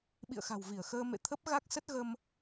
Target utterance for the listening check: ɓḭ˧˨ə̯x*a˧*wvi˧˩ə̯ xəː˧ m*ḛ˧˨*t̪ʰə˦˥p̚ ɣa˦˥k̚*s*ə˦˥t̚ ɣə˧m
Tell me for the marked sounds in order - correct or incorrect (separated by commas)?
incorrect, correct, correct